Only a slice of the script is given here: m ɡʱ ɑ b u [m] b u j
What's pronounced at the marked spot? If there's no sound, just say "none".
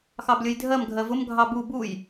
none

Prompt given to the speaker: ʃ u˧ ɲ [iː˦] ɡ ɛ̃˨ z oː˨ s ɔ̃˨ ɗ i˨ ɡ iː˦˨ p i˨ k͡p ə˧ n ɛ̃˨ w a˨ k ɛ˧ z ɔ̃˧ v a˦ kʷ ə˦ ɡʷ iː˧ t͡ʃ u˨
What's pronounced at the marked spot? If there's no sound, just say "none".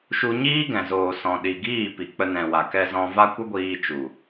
iː˦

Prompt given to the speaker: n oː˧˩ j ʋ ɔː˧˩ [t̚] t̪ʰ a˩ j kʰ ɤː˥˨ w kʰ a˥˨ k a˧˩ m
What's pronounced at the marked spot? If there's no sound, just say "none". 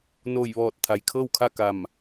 t̚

